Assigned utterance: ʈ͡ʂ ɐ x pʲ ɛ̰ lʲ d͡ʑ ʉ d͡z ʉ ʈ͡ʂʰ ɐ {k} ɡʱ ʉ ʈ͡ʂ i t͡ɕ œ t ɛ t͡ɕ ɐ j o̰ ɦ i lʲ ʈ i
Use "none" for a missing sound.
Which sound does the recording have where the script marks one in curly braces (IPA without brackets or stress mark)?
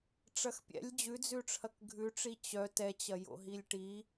k